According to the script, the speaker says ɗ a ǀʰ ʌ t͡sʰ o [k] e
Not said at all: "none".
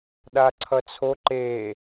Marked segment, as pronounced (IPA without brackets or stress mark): ǃ